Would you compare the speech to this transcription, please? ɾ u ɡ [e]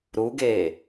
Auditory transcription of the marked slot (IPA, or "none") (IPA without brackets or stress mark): eː